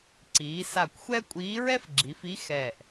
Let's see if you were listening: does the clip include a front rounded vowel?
no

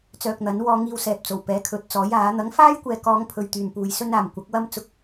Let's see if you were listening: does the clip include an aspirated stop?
yes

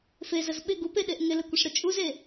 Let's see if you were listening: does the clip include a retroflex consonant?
yes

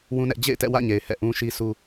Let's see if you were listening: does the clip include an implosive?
no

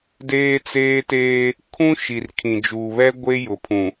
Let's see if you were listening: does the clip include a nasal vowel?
yes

